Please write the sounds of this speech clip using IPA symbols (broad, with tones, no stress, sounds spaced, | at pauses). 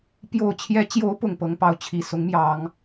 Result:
p j o˨˩ ʊ̯ t͡ɕʰ j ɛ˧˥ t͡ɕ j o˧˥ ʊ̯ p ʊ˨˩ ŋ p ɤ˧˥ ŋ p ɑ˧˥ ʊ̯ t͡ɕʰ i˨˩ s ʊ˧˥ ŋ m j ɑ˨˩˦ ŋ